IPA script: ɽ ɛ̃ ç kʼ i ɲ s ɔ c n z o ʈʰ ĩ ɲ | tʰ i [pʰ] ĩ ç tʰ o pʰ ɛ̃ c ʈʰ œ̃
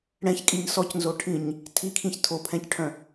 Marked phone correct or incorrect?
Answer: incorrect